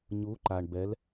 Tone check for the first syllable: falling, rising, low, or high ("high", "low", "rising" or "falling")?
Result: rising